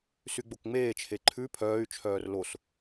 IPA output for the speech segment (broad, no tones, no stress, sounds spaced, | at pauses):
s y ɡ͡b o k ŋ͡m eː t͡ʃʰ e ǃʰ ʉ pʰ œː y̯ t͡ʃʰ œː r l o s